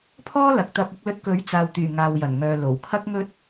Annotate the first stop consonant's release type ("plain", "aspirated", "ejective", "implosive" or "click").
aspirated